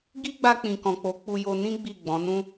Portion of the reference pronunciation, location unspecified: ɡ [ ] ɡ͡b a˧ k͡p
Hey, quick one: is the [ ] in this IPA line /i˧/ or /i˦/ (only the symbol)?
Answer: i˦